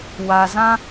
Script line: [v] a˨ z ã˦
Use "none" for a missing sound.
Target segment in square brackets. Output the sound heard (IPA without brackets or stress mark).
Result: w